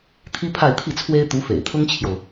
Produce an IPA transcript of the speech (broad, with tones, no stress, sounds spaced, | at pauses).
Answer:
t̪ʰ i˥ pʰ a˥˧ ɪ̯ t̪ʰ i˥˩ t͡sʰ w e˥ ɪ̯ t̪ u˧˥ f ḛ˨˩ ɪ̯ t̪ʰ ʊ˥ ŋ t͡ɕʰ j o˨ ʊ̯